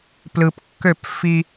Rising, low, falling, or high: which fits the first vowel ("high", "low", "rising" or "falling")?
low